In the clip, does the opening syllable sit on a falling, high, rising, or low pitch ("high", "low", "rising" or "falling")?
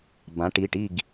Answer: rising